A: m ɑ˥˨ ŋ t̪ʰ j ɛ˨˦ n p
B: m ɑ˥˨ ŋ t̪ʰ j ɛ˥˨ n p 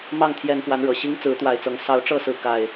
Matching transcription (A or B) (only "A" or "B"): A